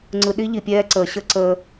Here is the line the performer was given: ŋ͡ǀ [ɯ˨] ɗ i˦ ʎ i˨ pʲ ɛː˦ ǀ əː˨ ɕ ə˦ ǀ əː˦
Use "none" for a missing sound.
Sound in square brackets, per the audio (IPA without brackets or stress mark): ɯ˨